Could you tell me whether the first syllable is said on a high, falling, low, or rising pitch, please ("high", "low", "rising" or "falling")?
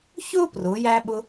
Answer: high